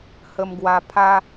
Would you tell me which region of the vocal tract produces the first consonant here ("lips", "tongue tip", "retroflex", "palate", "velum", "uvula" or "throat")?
throat